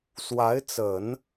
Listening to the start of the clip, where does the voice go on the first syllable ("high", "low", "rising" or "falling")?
rising